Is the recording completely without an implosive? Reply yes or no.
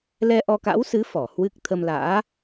yes